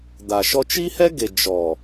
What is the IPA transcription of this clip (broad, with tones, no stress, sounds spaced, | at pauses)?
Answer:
d̪ a˨ ʃ ɔ˧ t͡ʃ i˦ h ɛ˦ ɡ e˨ d͡ʒ ɔ˨